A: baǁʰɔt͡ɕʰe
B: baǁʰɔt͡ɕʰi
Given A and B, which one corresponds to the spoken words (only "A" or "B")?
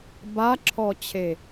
A